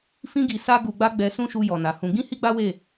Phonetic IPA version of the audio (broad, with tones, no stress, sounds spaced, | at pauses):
f ĩ˧ ɡ i˨ s a˧ ɡ u˨ ɡ͡b a˧ ɡ͡b ɛ˧ s ũ˦ ʃ u˧ j ɔ˨ n a˨ h ũ˧ ɡ ĩ˦ h i˦ ɡ͡b a˦ w e˦˨